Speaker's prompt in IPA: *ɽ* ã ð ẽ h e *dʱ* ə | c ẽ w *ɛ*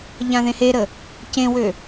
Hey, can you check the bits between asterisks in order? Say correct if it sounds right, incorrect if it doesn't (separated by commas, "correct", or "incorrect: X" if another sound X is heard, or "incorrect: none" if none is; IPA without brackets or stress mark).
incorrect: ʎ, incorrect: ɾ, incorrect: ø